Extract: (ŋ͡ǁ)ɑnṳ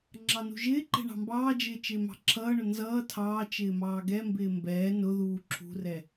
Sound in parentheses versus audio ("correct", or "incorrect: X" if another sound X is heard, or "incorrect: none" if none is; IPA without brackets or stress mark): correct